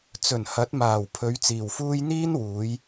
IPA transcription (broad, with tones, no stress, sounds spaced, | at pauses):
t͡s ɵ˨˩ n h ɐ˨˥ t̚ m aː˨˩ w pʰ ɵ˨˧ ɥ t͡s iː˨˩ w f uː˥ j n̪ iː˥ n w uː˨˧ j